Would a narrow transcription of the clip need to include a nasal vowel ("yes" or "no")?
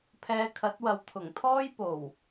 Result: no